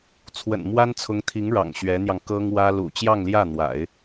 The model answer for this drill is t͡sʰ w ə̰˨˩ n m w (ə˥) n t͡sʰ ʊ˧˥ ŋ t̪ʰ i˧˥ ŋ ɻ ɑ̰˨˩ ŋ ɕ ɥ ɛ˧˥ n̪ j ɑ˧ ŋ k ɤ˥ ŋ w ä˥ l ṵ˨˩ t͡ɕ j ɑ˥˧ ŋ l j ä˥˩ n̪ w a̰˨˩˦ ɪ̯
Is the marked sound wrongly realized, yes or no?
yes